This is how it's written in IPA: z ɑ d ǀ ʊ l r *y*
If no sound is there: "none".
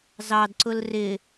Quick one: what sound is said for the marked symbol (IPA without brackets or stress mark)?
ɪ